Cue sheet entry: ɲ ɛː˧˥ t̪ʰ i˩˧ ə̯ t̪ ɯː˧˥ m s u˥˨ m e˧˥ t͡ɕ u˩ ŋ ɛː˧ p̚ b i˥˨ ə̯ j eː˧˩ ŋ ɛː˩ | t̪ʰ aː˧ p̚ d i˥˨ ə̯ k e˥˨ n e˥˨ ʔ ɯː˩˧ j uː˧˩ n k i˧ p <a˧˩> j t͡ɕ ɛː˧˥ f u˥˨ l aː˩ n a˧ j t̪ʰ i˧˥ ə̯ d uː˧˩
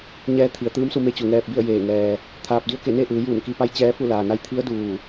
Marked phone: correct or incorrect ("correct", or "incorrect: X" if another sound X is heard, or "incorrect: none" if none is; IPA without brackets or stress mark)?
incorrect: a˧˥